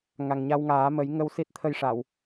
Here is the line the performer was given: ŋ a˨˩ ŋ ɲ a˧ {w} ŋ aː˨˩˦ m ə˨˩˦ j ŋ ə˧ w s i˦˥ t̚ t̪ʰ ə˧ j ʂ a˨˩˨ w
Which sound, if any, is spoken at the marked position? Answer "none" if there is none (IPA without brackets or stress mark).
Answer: w